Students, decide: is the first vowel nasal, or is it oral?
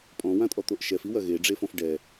nasal